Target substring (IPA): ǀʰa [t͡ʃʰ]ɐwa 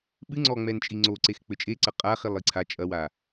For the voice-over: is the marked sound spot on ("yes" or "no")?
no